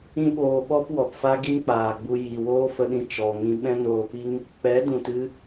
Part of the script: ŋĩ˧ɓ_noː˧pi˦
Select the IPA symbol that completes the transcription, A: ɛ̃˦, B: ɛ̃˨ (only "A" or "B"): A